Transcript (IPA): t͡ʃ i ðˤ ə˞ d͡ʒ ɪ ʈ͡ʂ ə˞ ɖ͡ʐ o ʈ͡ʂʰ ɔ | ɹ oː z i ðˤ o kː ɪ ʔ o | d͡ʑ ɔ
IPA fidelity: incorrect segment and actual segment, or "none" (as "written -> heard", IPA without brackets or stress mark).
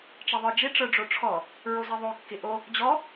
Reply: oː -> o